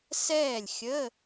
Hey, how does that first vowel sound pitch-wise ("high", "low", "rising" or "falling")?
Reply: falling